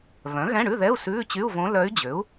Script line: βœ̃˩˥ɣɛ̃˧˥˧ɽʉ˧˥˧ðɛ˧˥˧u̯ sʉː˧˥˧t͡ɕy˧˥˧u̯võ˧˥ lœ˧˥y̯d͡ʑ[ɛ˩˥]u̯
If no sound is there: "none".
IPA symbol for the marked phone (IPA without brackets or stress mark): ø˩˥